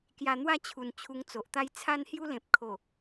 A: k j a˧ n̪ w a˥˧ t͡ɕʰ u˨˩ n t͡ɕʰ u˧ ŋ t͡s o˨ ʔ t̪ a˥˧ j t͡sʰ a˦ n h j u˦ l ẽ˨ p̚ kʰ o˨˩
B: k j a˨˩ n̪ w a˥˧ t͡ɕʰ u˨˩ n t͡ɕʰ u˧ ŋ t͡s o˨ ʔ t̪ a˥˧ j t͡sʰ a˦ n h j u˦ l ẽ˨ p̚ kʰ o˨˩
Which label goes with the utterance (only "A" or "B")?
A